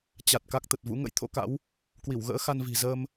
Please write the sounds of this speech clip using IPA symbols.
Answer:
t͡ɕ a˨˩ t̚ k a˦˥ k̚ t̪ ə˨˩ t̚ v ṵ˧˥ ŋ ə̰˧˥ j t̪ʰ o̰˧˥ k a̰˧˥ w | k w i˧˩ w ɣ ə̰ː˧˥ x a˧ n v i̤˨˩ z ə˧ m

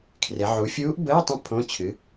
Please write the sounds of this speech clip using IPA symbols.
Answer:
kʰ r e˩˧ ʕ u˩˧ fʲ uː˧˥ ʔ b əː˧˥˧ tˤ ə̃˧˥ pʰ õ˧˥˧ t͡ɕʰ ɨ˩˥

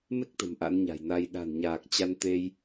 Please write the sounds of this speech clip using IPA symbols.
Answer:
m e˦˥ k̚ t̪ ə̤˨˩ m ʔ a̰˧˥ n ɲ a̤˨˩ j n a˧ j ɗ a̤˨˩ n ɲ aː˨˩ k̚ t͡ɕ a˧ n t̪ e˧ j

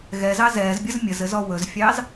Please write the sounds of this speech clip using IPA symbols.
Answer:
ɣ ɛ z ɑ z ɛ z bʲ ə z mʲ ə z ɘ z ɔ w ɵ z fʲ ɑ z

